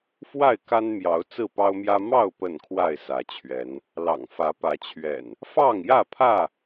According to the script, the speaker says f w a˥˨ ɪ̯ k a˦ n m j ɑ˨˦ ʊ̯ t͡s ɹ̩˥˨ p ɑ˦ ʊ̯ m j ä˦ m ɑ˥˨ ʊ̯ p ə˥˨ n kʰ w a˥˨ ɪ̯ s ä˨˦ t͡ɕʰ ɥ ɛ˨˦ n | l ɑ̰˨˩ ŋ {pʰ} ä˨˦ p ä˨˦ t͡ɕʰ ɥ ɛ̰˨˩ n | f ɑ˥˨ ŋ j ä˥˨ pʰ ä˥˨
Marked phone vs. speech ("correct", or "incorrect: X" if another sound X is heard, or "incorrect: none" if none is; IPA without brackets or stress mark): incorrect: f